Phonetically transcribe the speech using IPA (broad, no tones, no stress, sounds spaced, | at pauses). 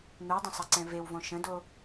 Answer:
n̪ u dˤ ə̃ sˤ ɐ ǀ ɛ̃ v e w v õ ʃ ə̃ d o